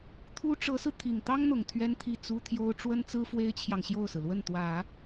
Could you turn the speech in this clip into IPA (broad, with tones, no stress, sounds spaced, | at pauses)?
t̪ʰ u˥ ʈ͡ʂ ɤ˧˥ s ɹ̩˧ t̪ʰ i˨˩ ŋ t̪ ɑ˥ ŋ n̪ ʊ˨˩ ŋ t̪ʰ ɥ ɛ˥ n t̪ʰ i˥˩ t͡s u˥ t̪ʰ j o˥ ʊ̯ ʈ͡ʂ w ə˥ n t͡s ɹ̩˥ f w e˥ ɪ̯ t͡ɕʰ j ɑ˨ ŋ ɕ j o˥˩ ʊ̯ s ɹ̩˩ l w ə˥˩ n t̪ w ä˨˩˦